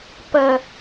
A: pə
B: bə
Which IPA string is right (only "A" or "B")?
A